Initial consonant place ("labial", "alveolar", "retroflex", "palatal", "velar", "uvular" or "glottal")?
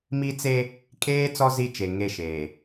labial